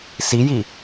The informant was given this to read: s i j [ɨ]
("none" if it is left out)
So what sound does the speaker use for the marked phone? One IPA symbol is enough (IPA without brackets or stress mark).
i